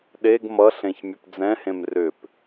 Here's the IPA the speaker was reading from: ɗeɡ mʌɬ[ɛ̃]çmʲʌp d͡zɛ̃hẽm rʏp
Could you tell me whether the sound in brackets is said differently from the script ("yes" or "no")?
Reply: yes